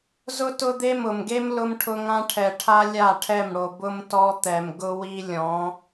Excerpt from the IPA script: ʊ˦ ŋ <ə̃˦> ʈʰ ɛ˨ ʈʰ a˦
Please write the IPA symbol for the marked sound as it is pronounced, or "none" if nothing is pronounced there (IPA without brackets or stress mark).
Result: ã˦